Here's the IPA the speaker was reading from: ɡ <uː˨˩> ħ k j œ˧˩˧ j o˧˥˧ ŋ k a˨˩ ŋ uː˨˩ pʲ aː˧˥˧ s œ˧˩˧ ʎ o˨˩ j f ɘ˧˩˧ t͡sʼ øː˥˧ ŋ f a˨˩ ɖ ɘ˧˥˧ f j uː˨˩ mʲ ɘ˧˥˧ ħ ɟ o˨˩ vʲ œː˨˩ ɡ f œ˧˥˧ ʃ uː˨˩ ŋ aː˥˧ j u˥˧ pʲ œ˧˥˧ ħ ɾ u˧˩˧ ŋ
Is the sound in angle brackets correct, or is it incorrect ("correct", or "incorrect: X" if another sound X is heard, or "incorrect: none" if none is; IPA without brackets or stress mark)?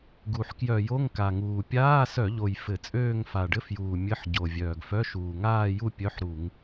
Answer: incorrect: u˨˩